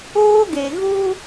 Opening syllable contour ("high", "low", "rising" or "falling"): high